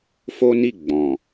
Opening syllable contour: high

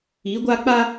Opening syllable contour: rising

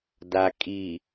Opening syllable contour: low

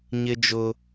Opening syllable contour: high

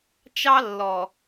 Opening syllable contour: high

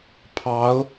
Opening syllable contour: rising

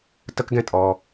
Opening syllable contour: high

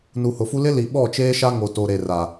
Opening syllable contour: low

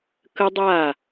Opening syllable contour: high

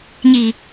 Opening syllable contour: low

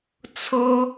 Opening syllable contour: high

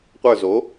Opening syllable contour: falling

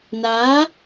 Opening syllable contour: rising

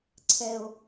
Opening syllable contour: low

